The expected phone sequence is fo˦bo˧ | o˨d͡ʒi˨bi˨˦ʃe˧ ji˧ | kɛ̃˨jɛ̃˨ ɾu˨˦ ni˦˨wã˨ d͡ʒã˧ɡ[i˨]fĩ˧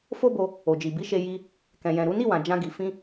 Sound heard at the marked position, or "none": i˨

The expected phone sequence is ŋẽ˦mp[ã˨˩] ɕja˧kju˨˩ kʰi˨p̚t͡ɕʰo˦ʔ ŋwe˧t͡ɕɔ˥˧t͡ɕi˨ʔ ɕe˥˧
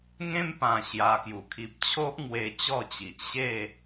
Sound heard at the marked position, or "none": ã˨˩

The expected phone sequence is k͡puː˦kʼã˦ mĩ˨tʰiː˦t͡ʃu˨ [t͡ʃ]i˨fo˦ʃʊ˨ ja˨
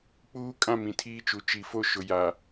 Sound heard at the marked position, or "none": t͡ʃ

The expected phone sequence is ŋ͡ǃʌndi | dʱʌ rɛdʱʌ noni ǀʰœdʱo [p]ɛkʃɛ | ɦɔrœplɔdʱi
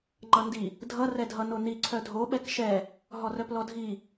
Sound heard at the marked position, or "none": ɓ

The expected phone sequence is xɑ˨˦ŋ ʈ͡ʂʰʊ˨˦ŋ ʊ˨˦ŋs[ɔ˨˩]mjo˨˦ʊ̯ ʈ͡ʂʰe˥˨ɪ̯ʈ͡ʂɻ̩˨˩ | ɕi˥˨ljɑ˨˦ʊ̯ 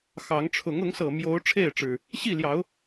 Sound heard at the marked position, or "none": ɤ˨˩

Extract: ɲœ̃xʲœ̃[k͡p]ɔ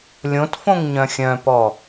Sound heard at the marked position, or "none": p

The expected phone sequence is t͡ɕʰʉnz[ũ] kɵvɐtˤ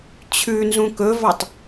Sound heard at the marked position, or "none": ũ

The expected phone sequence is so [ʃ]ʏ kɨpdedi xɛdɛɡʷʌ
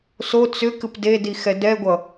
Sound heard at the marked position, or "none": t͡s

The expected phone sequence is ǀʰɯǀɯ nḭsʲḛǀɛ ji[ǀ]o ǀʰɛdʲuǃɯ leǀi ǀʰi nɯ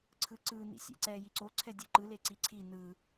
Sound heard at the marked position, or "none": ǀ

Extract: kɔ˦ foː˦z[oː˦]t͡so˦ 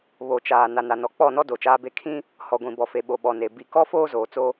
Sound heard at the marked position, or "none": oː˨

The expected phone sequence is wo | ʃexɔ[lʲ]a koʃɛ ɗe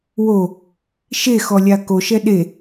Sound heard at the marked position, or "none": lʲ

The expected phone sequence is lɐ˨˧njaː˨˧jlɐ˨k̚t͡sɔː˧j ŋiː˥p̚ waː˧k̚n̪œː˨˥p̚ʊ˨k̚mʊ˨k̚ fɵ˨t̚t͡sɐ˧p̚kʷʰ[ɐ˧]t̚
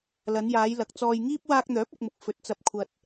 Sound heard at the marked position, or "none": ɐ˧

